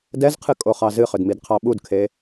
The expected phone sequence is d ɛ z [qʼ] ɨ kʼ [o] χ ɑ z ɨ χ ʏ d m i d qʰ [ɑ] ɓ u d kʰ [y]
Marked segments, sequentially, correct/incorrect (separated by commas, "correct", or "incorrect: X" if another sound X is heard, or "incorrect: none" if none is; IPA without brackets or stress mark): incorrect: qʰ, correct, correct, incorrect: e